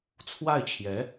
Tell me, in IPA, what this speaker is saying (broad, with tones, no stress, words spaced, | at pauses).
t͡sʰwa˥˩ɪ̯t͡ɕʰjɛ˧˥